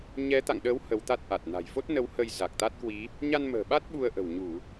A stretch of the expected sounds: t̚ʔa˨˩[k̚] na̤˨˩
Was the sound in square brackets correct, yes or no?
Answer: no